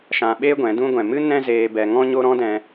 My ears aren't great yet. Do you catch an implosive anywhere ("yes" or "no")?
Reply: yes